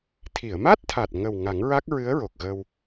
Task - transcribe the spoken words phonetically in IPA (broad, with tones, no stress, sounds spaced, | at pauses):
t̪ʰ i˨˩˨ ə̯ m a˦˥ t̚ t̪ʰ aː˨˩ t̚ ŋ ə˨˩ w ŋ a˨˩˦ ŋ ɹ a˦˥ k̚ ɹ ɨ˧˥ ə̯ ɹ o˨˩ k̚ ɣ ə˧ w